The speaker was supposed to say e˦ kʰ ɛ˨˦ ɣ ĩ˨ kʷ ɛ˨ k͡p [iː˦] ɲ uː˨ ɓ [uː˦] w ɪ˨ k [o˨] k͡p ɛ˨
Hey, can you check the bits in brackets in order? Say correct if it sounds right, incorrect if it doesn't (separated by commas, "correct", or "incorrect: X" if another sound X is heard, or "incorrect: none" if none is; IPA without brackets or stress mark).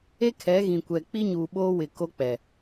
incorrect: i˦, incorrect: oː˦, incorrect: o˦